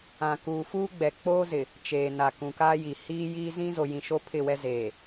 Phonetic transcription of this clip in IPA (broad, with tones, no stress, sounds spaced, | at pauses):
ã˨ k uː˨ f uː˦ ɡ͡b ɛ˨ k͡p oː˦ z ɪ˨ | t͡ʃ eː˨ n a˨ k ũ˨ k aː˦ j i˨ h iː˦ j iː˦ z ĩ˦ z o˨ j ĩ˨ ʃ o˦ pʰ ɪ˦˨ w ɛ˦ z eː˨